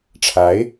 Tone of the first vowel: rising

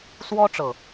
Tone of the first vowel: high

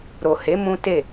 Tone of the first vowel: low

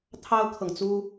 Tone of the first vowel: high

